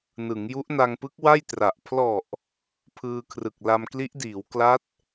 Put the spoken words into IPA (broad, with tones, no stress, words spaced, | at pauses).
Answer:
nɯ˩˦ŋju˦˥ʔna˧ŋpɯ˦˥k̚ wa˥˩jtra˨˩ʔ pʰlɔ˨˩ʔ | pʰɯː˧kʰrɯ˨˩k̚ la˧mkli˦˥ʔdiː˩˦w kla˦˥t̚